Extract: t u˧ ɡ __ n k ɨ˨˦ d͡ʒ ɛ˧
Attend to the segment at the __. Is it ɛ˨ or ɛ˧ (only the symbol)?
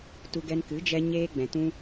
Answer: ɛ˧